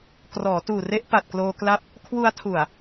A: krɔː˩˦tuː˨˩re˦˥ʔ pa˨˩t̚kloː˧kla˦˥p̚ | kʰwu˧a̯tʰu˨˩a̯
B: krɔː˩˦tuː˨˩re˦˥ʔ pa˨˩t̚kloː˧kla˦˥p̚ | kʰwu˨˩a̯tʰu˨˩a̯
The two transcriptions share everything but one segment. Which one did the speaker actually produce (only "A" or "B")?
A